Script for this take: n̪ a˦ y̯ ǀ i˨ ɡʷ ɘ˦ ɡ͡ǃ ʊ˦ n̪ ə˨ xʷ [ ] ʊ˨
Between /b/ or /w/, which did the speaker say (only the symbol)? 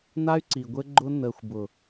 b